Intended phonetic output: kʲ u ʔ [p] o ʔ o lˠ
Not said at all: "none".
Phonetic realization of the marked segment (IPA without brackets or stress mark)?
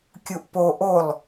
p